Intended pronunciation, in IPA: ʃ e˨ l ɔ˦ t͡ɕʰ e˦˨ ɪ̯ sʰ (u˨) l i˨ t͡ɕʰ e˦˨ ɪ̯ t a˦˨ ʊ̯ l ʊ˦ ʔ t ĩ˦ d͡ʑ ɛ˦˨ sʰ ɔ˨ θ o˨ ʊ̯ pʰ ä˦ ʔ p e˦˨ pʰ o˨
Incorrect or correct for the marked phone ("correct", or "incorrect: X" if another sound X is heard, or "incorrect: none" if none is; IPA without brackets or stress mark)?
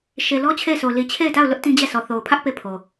incorrect: o˨